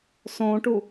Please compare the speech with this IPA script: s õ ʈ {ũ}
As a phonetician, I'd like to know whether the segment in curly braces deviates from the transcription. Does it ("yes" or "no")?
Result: yes